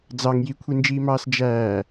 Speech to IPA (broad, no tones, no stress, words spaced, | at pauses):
d͡zɑŋ jikʷʰind͡ʒiːmɑːs d͡ʒæː